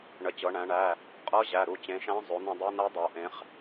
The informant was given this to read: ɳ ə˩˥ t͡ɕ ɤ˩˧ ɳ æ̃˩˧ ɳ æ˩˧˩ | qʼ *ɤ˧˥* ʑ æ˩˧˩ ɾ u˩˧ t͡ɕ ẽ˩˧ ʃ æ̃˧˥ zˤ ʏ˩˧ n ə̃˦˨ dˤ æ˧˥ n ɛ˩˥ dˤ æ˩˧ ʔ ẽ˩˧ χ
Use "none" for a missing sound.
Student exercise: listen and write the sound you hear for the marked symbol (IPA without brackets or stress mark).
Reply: ɤ˧˥